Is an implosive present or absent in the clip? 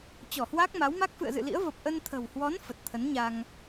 absent